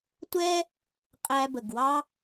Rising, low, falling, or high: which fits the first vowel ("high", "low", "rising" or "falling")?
high